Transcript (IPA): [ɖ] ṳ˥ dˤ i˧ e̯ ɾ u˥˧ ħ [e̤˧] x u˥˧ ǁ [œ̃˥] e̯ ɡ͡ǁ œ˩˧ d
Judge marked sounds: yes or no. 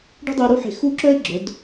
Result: yes, yes, no

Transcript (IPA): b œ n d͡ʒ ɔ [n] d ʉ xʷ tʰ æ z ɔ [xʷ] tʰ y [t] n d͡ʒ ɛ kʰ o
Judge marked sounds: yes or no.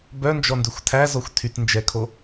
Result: yes, yes, yes

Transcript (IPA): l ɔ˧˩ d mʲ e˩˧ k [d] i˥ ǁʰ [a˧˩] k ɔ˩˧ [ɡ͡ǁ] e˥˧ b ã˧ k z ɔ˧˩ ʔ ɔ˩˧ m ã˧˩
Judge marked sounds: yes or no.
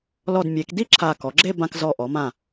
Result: yes, yes, yes

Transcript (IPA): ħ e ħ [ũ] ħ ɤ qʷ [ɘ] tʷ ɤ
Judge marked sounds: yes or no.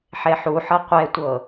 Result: no, no

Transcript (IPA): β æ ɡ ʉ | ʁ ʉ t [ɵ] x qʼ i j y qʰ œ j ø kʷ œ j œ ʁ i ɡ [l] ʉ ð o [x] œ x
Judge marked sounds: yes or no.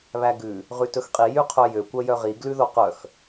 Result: yes, yes, no

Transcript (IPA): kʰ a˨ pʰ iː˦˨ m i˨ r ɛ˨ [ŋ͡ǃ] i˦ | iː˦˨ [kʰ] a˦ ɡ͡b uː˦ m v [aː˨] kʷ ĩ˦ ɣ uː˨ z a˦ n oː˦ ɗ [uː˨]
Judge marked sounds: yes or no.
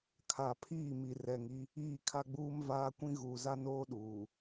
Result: no, yes, no, yes

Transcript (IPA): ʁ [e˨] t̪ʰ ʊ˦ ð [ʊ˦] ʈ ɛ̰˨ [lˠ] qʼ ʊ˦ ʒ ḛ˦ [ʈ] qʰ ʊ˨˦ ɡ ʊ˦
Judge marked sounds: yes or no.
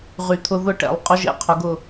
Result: no, yes, yes, no

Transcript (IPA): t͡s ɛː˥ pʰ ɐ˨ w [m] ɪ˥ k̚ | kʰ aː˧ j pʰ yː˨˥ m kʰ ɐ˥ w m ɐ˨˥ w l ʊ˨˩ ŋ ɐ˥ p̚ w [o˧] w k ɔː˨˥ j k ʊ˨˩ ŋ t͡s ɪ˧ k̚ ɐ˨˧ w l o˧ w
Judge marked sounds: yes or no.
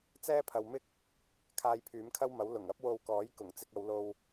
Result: yes, yes

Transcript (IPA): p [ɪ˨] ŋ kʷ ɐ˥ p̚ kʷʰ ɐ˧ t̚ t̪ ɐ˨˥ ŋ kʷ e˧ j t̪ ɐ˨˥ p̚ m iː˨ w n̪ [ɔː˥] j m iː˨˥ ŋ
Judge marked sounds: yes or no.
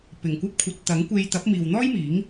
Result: no, yes

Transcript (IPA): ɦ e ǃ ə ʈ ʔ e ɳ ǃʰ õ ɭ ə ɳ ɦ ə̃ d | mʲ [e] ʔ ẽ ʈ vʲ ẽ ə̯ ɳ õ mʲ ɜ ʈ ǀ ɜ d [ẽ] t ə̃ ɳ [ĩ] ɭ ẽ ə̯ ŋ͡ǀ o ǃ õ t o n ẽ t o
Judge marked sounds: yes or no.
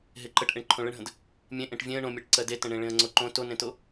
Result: no, no, no

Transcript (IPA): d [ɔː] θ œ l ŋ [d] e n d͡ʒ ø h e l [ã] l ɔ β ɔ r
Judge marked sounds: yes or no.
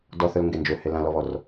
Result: no, no, yes

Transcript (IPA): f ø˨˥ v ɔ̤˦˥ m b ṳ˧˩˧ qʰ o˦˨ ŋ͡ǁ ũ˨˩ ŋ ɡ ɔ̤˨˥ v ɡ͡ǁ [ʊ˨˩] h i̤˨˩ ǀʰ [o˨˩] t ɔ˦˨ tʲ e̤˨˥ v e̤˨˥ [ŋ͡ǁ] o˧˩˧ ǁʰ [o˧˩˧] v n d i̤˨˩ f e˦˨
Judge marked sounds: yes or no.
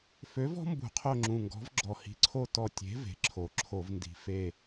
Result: no, no, no, yes

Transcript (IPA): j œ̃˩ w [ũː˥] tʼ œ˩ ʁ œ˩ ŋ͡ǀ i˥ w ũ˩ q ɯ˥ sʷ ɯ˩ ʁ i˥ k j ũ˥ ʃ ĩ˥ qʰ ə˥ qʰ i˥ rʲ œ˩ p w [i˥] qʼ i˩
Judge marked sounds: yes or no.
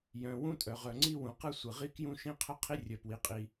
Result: no, no

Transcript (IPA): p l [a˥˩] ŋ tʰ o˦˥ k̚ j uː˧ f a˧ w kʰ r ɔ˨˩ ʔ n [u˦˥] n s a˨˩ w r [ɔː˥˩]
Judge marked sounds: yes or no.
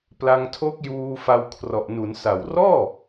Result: no, no, yes

